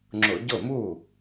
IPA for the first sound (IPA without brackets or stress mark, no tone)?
ŋ͡ǁ